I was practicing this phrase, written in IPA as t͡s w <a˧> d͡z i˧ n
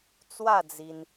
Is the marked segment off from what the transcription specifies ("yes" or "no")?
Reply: yes